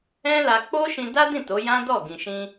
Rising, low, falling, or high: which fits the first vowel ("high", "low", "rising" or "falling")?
high